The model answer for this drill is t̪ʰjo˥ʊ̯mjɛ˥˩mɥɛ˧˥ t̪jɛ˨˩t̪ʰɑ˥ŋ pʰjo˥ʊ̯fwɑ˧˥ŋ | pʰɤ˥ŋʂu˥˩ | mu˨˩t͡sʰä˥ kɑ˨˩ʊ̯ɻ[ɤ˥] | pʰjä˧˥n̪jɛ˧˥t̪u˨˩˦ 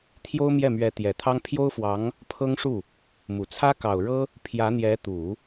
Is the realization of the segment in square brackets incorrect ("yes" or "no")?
no